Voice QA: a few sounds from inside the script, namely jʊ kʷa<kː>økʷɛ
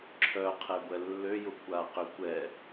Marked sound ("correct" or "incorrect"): incorrect